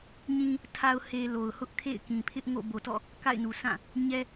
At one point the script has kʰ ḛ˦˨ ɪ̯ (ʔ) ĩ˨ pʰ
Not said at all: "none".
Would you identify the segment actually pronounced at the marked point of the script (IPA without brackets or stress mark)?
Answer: k